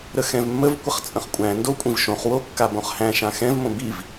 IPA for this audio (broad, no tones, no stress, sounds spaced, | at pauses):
ɾ ə x ɛ̃ v mː ə v kʷ ə χ t͡sʼ ə̃ χ kʷʼ æ̃ n d o kʷʼ ĩ v ʃ õ χ w o kː a b õ χ h æ̃ ʃ ã x ɛ̃ v m õ b i v